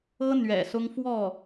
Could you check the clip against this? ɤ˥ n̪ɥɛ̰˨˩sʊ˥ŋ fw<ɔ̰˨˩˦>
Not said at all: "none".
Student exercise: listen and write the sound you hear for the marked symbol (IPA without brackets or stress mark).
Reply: ɔ˥˩